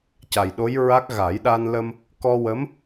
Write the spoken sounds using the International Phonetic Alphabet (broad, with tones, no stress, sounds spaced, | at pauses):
c a˨˩ j ɗ o˧˥ j ɹ a˦˥ k̚ ɣ a˨˩˦ j ɗ a˧ n l ə˧ m | k ɔ˧ w ə˧˥ m